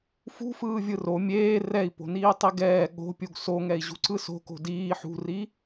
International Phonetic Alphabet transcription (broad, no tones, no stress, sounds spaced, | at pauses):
f ṳ f ɯː vʲ ɯ r o mʲ eː r ɛ i̯ p o̤ n iː tˤ i ɡ ɛː ɠ o̤ pʲ u ɡ s o ŋ ɛ i̯ ʑ ṳ ǀ ɯ s o̤ k o̤ d iː ħ ṳ r i